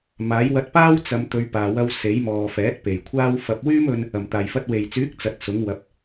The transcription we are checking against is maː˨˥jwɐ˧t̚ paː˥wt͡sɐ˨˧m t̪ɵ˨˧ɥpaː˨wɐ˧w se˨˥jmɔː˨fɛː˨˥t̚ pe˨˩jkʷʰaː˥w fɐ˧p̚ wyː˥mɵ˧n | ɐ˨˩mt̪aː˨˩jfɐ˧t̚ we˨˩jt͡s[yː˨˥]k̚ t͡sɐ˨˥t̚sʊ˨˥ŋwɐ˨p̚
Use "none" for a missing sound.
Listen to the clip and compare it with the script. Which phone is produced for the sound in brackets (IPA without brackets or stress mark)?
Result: yː˨˥